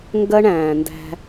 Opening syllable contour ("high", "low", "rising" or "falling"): high